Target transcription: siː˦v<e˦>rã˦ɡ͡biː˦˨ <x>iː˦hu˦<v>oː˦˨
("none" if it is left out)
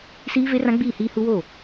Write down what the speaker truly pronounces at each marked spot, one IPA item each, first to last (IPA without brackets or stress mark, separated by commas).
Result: e˦, h, w